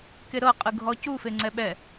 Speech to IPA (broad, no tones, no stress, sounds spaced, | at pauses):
k e ɾ ɤ qʼ ɯ ɡʱ ɔ c u f e ŋ͡ǀ ɛ ɓ ɛ